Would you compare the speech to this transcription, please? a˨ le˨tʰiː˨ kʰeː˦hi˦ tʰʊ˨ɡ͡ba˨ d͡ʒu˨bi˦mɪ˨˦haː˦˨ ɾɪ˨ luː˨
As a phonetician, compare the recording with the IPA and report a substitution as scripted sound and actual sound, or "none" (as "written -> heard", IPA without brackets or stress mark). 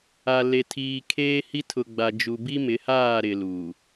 none